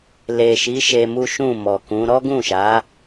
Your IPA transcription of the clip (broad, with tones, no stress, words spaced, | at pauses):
le˨ʃi˨˦ ʃe˧mu˦ʃũ˦˨mɔ˨ kũ˨˦ ɾɔ˦ɡũ˦˨ʃa˨˦